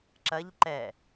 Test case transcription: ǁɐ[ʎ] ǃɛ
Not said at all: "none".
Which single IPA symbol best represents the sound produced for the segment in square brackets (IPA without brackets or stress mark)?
ʎ